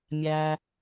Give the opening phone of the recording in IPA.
mʲ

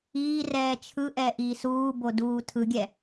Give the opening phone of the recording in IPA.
iː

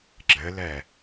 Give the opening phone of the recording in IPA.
ɡ͡ǁ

